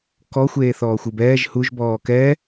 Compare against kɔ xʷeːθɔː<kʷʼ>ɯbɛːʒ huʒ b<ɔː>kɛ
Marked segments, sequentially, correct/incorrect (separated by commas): incorrect, correct